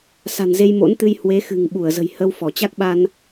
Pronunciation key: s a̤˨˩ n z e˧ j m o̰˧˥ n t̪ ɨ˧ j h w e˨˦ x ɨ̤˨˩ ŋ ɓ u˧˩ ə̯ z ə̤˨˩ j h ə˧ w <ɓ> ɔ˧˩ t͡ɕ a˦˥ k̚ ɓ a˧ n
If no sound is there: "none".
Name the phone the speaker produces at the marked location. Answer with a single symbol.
f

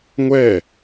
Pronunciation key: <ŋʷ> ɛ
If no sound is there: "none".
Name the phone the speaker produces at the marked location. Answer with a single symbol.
ŋʷ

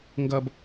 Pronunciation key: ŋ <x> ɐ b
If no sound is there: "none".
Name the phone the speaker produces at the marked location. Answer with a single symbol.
ɡ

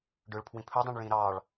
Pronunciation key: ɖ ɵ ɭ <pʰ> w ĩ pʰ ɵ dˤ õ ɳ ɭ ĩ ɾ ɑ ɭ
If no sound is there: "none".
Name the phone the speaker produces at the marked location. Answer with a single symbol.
pʰ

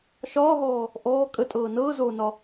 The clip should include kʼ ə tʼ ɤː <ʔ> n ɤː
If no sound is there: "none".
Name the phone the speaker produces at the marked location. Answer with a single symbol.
none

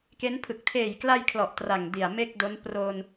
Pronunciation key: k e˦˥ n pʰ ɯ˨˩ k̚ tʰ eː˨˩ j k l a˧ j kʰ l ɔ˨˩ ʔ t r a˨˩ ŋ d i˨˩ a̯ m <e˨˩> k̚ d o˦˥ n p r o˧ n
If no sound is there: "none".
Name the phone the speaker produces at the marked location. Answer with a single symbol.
e˥˩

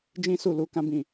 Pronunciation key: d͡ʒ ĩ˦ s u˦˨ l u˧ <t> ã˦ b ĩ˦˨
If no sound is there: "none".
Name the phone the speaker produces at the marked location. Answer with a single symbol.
k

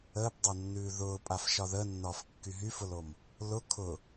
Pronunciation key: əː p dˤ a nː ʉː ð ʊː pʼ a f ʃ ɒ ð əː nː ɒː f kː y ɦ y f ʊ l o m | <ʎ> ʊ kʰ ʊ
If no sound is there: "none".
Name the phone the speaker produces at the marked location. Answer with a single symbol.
l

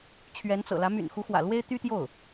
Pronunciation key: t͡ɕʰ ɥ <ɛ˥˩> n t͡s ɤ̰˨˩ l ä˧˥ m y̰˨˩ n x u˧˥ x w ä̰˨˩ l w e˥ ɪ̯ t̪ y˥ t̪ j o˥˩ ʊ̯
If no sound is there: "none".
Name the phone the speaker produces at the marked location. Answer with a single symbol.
ɛ˧˥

